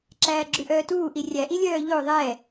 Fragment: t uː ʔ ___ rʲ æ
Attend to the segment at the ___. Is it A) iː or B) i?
B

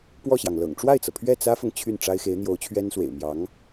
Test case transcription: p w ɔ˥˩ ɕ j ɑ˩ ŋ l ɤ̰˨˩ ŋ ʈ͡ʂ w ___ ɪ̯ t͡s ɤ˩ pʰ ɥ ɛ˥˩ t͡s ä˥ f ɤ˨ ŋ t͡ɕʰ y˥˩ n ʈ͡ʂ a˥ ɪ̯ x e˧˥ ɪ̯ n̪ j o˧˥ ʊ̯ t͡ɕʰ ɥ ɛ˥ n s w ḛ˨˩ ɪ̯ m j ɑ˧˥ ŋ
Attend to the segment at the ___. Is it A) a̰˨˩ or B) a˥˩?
B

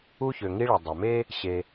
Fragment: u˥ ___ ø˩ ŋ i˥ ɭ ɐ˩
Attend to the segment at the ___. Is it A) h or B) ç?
B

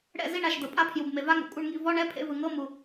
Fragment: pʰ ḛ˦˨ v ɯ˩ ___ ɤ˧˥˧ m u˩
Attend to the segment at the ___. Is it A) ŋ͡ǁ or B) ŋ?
B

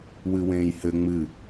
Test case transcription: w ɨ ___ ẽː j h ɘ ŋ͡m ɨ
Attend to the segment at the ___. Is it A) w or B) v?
A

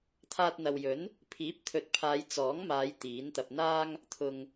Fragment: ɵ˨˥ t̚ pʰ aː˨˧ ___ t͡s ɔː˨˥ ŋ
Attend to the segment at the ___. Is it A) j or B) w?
A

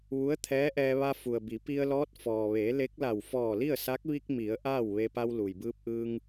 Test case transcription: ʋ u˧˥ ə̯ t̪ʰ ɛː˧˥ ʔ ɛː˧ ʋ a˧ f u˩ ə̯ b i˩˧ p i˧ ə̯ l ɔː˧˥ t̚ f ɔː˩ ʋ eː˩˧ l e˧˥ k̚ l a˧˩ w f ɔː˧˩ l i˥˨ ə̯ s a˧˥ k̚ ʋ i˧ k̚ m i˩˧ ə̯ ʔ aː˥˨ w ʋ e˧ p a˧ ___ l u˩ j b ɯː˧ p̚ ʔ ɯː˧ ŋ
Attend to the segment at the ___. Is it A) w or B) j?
A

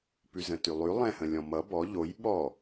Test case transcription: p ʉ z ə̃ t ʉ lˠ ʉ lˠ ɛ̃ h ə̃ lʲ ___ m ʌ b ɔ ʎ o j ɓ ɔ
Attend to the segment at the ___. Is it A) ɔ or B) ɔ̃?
B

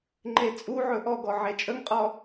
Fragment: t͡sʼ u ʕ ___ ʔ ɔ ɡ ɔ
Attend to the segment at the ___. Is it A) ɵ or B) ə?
A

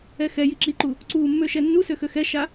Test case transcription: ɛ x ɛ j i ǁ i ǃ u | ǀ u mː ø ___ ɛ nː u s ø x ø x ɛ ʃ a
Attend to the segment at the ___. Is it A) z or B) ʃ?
B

